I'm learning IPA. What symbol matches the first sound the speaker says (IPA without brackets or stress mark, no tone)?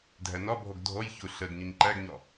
dʱ